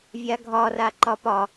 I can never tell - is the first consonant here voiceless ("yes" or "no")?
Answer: no